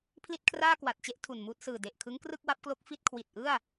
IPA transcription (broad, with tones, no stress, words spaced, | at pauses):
pʰli˥˩t̚kʰraː˥˩kwa˨˩t̚t͡ɕe˥˩ʔ tʰu˨˩nmuː˥˩t̚ sɯː˨˩de˨˩ʔkʰɯ˦˥ŋkrɯ˥˩k̚ wa˦˥p̚klo˦˥k̚ fi˥˩t̚ kʰwi˨˩t̚ʔɯ˥˩a̯